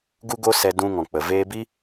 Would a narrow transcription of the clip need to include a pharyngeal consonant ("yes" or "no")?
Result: no